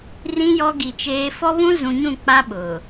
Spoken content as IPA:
rĩ˦ jɔ˦ɡi˨t͡ʃeː˦ fɔ˦βũ˦zũ˨ɲũ˦˨ k͡pa˦ ɓʊ˨

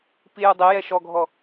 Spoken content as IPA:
pijudˤejɛ ʃɔɡʱɔ

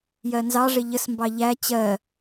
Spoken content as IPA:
jɜnzɑʐɪ ʎəs mbɑʎæ t͡ɕɜ

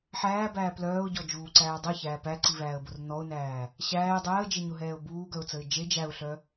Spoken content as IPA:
ħæːbæː plœːʊ̯ɟɔd͡ʒuːǀæː dˤɘçæː pæǀivæːə̯bʊr nɔʊ̯næː | ɕæːɪ̯ dˤɛːə̯d͡ʒeɲʊɦɛːʊ̯ buːɡœʊ̯t͡səɪ̯ d͡ʒe d͡ʒæʊ̯ɬœ

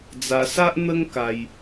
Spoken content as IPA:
d͡za˧ sa˦ʔn̪ə˦ŋ ka˧j

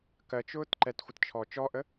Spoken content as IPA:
kɜt͡ʃʊːt ǃɛtxʷɪt t͡ʃʰɔ t͡ʃɔʔə

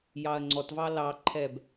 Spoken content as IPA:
jɑɐ̯ŋ͡ǀɔtvɑ lɑǃʰɛb

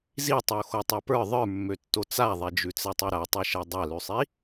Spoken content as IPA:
zitˤo xotˤɛpə˞ ðˤə˞mːøtːo t͡saðˤɛd͡ʒʉ t͡sɛtˤʉɾatˤɛ ʃɛdˤalʉsˤi

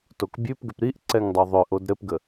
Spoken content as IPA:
tokbʲʉpɡʏp ɾiʔ ǀɛŋdˤoðˤʏʔod ɾɘpɡə

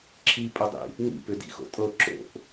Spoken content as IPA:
ǁʰipʼɵdˤḭ | nḭpʏdḭxo̰ tʼɤ ǁo̰ʔ

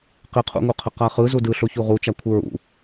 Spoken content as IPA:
qɪqʰṵŋuqʰə qaχɯ zudɯɬo çuʁut͡ʃakʷʰɯ ɹṵ

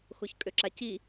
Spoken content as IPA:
xoçkʼøǁaci

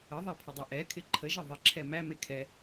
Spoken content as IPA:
əðˤæpʰədˤe ʔɛkʰɪ ǃʰəʒɪ ðˤɪǁʰɛ mæme kʰɛ

